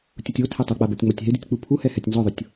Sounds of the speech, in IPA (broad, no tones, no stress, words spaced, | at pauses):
tʲutʲotʰɛ tˤok͡pa botʲŋ͡mɔtʲɦɪditʲ k͡pupʰuhɛ hɛtʲnzɔðˤʊtʲ